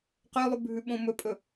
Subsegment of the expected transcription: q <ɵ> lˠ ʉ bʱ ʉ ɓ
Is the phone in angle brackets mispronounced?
yes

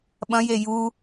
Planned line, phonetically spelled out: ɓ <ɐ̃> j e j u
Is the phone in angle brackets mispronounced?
no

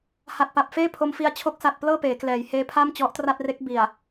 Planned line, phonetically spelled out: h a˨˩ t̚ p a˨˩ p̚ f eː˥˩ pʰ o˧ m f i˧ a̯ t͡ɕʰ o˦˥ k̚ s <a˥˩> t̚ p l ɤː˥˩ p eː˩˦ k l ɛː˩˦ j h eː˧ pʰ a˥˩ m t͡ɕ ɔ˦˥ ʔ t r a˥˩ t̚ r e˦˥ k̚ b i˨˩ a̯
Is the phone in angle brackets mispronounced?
yes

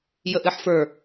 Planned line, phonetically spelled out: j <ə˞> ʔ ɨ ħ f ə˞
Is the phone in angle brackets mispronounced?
yes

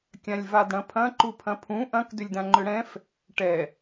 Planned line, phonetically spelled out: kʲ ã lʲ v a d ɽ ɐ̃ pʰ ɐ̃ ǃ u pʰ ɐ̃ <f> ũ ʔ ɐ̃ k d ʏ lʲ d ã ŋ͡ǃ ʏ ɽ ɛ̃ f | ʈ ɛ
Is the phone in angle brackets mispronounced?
yes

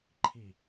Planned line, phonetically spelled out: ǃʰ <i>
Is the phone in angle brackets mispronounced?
no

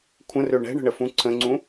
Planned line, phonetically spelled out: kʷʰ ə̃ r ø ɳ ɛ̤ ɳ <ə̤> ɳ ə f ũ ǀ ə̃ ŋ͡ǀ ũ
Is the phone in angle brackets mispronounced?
no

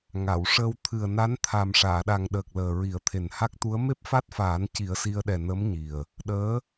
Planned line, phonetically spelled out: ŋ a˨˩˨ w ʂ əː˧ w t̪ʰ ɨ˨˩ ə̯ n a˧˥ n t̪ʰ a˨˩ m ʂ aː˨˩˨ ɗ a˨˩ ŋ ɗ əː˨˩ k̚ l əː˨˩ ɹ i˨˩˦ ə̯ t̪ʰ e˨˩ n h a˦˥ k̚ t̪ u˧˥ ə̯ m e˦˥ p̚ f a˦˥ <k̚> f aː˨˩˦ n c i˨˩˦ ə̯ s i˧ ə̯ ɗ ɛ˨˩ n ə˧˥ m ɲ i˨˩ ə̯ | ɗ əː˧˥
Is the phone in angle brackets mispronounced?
yes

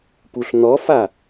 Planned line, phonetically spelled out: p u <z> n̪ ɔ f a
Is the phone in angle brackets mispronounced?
yes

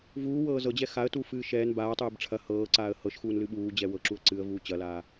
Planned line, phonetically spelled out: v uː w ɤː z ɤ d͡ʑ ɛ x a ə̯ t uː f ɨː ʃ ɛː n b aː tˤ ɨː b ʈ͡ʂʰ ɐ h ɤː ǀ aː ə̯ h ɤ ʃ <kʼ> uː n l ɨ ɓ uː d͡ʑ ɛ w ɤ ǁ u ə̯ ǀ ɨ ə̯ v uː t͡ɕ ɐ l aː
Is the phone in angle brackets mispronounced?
yes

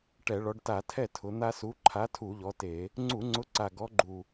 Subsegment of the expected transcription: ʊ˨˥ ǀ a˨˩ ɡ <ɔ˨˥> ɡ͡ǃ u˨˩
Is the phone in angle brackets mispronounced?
no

